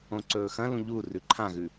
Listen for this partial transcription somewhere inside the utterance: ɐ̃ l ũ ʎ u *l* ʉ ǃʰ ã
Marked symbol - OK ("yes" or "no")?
no